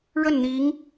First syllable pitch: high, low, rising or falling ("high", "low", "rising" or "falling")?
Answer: falling